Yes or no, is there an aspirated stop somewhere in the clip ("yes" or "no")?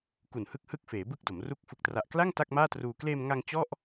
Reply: no